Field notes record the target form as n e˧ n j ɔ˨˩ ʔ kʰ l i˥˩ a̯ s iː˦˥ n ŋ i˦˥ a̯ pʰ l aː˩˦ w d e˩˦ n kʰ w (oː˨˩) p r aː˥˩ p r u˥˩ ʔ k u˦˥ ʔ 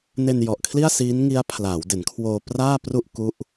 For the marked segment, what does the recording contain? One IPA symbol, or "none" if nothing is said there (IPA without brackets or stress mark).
oː˧